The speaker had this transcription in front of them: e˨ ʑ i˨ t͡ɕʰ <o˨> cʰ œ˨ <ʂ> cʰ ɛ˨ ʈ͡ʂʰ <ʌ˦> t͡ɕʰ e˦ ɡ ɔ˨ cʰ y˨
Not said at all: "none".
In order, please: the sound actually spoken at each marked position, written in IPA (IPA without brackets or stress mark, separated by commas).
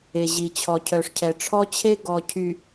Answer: ɔ˨, ʂ, ɔ˦